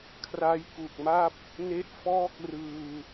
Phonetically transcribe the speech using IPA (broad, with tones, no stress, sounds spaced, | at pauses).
kʰ r a˦˥ j k u˨˩ k̚ m a˥˩ p̚ | n e˦˥ ʔ f ɔː˥˩ k̚ r ɯː˧